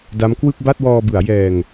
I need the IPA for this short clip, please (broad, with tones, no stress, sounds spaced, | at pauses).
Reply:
d a˦˥ m k w ɯ˥˩ k̚ b a˥˩ t̚ w ɔː˧ b ɯ˩˦ a̯ j ɛː˧ ŋ